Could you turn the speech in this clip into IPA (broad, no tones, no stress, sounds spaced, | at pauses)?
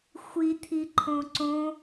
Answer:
xʷ i t̪ʰ i ǃʰ õ ǀ õ